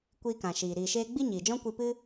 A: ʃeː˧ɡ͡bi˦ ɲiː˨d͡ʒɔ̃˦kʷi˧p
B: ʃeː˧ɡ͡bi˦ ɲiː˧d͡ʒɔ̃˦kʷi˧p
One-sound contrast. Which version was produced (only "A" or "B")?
A